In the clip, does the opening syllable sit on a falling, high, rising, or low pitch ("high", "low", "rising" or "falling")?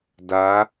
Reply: rising